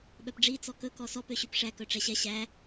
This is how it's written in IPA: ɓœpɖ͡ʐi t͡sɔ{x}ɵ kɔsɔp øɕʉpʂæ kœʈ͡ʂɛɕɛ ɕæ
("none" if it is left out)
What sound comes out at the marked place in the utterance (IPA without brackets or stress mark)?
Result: k